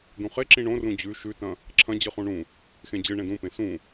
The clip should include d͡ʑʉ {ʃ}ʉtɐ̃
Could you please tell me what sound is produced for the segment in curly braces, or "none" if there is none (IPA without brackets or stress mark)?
ʃ